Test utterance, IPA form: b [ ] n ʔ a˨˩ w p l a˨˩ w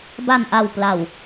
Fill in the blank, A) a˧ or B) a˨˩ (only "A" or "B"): B